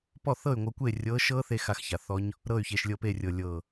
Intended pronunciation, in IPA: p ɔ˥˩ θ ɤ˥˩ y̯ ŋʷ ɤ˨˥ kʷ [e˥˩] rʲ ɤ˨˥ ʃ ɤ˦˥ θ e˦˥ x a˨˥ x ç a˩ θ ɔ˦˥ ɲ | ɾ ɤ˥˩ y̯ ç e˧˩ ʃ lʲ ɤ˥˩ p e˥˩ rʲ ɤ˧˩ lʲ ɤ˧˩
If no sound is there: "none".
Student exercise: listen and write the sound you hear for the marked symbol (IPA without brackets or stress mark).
e˥˩